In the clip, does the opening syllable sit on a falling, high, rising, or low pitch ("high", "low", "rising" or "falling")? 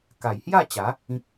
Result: low